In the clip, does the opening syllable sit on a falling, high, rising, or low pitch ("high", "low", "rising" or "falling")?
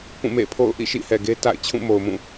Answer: falling